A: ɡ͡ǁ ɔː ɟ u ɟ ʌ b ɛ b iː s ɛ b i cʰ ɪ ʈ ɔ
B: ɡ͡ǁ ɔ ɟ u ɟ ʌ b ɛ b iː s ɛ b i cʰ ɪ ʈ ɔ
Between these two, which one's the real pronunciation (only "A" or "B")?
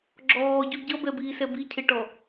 A